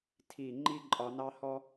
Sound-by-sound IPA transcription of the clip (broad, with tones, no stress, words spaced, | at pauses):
tʰi˦˨ ŋ͡ǃi˦ǃʼɒ˧nɑ˦hɔ˦